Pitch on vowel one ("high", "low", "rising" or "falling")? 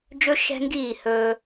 high